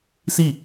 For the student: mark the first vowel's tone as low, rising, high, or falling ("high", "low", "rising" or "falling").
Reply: falling